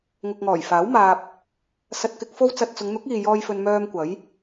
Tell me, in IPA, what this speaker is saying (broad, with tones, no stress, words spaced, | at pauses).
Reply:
ŋʊ˨k̚ŋɔː˨˩jfaː˨˥w maː˧p̚ | sɐ˧t̚kɪ˧k̚ fo˥wt͡sɐ˧t̚ t͡sʊ˨˧ŋn̪ʊ˨˥k̚iː˨jɔː˧j fɵ˧nmœː˧m kʷɐ˨˥j